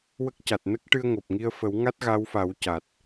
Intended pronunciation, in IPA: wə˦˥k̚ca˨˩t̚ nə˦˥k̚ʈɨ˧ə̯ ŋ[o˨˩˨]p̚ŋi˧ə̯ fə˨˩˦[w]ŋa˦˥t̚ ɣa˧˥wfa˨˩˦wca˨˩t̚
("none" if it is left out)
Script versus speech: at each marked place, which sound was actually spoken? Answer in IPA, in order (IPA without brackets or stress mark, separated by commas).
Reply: o˨˩, w